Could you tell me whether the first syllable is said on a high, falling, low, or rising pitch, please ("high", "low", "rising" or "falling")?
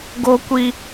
high